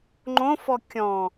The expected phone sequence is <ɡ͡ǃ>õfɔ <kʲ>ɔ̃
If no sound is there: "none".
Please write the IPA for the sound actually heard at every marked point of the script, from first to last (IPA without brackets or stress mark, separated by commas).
ŋ͡ǃ, kʲ